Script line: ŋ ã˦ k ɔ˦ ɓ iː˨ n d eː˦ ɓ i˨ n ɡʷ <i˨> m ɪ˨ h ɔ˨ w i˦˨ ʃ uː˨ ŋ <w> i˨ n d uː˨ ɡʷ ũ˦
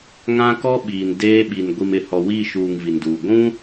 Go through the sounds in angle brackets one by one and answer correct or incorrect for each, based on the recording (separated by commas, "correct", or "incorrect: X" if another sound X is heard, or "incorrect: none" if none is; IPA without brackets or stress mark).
correct, incorrect: v